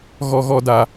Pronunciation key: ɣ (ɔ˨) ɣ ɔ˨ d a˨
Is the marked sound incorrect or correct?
correct